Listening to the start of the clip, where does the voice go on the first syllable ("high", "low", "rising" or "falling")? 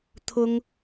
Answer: high